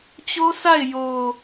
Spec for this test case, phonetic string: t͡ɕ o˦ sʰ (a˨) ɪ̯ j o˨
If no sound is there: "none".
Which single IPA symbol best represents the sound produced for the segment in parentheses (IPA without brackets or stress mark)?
a˦˨